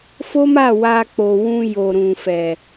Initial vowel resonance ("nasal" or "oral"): oral